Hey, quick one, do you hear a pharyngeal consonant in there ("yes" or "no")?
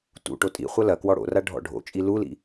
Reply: no